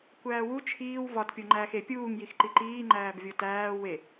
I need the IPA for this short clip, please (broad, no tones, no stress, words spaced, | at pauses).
kʷæːwu t͡ʃʰiːw vɒt pʲoŋ͡ǃæːxe pʲuːŋ jixǃiǃiː ŋ͡ǃæːbvʲotæː we